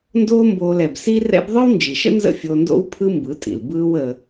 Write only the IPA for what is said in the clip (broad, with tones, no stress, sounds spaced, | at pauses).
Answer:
n d oː˦ m b oː˧ l ɛ˨ b s i˦ r ɛ̰˦ b ðˤ ɯ˦ w n d͡ʒ i˨ ʃ ə̰˦ n z ə̰˦ fʲ o˧ n d o̰˦ w pʰ ɯ˦ m b ɯ˨˦ tʼ ḭ˨ l b ɯː˦ w ə˧